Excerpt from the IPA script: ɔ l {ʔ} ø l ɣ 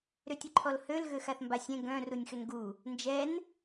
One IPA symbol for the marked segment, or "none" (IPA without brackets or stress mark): h